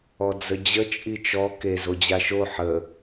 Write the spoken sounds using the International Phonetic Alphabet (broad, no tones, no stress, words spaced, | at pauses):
ɔd͡zəd͡ʑə t͡ʃʼit͡ʃɔ ke zod͡ʑaʃo ħə